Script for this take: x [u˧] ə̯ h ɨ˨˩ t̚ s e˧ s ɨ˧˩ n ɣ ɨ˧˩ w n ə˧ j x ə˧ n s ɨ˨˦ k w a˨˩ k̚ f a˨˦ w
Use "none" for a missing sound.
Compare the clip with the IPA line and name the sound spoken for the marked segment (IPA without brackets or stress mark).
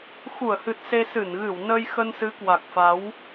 u˧˩